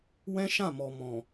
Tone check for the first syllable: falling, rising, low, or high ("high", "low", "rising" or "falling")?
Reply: high